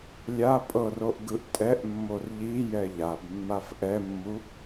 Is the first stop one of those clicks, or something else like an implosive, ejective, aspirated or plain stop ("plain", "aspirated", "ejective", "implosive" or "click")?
ejective